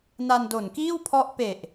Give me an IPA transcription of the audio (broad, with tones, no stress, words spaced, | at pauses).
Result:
na˧ndo˨˩nkiː˥˩w pʰɔ˦˥ʔ pe˨˩ʔ